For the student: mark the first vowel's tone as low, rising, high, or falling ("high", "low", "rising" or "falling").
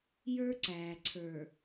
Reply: high